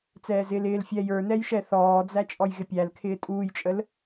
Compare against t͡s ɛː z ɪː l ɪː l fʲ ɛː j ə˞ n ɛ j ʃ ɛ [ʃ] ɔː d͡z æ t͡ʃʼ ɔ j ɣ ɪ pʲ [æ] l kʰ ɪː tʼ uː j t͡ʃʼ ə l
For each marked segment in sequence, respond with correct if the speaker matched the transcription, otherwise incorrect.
incorrect: θ, correct

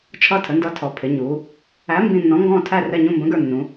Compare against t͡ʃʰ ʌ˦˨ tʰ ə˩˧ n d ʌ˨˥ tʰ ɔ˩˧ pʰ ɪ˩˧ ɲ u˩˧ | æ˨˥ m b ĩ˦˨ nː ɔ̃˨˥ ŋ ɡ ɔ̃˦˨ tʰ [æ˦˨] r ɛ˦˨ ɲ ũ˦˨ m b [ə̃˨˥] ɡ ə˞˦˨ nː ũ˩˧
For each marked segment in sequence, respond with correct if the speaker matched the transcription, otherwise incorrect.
correct, correct

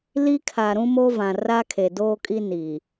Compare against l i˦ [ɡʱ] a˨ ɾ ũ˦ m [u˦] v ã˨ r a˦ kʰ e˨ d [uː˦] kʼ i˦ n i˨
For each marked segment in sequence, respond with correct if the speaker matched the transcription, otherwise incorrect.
incorrect: kʰ, incorrect: o˦, incorrect: oː˦

